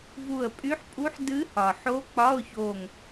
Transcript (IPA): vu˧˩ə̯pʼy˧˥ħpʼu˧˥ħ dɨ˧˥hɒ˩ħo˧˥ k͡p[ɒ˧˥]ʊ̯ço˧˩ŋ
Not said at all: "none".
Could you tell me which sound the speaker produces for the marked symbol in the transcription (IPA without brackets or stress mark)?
ɒ˧˥˧